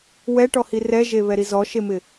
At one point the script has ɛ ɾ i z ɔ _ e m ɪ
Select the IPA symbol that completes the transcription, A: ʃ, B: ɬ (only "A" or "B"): A